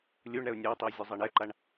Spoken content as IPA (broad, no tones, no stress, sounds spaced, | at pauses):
lʲ u ɳ ɾ ɛ ʊ̯ nʲ a ʊ̯ tˤ i w zʲ u zˤ ɛ ɳ ɛ ǃ a ɳ